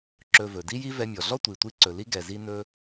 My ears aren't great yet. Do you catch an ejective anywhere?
no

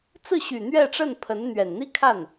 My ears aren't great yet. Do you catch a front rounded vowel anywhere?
yes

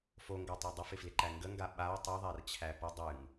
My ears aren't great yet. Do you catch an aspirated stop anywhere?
yes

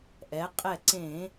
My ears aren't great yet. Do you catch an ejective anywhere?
yes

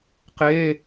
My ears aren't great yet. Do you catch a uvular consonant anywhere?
yes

